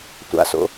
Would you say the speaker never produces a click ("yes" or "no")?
yes